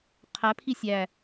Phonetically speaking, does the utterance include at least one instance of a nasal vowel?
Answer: no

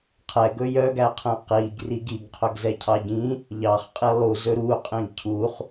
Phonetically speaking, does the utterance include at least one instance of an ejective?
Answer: yes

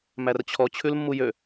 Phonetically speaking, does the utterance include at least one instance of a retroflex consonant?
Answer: no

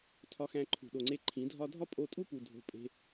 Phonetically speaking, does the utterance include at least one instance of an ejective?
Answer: yes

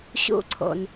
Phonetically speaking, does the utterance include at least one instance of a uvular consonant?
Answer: no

